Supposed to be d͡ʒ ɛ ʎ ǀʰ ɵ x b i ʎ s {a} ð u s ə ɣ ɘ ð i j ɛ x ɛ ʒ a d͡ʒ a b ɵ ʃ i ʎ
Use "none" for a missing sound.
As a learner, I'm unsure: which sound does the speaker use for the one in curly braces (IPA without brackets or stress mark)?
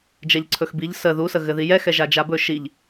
ə